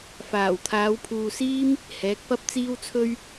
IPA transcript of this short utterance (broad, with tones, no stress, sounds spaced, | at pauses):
f aː˨˩ w t̪ʰ aː˨˧ w pʰ uː˨ s iː˥ m | h ɛː˨˥ k̚ p ɐ˥ p̚ t͡s iː˥ w t͡sʰ ɵ˥ ɥ